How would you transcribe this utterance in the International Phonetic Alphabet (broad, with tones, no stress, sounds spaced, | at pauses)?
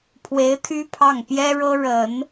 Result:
pʰ w e˧˥ ɪ̯ t̪ʰ y˥ pʰ ɑ˥˩ ŋ p j ɛ˥ ɻ ɤ˥ ɻ ə˨˩˦ n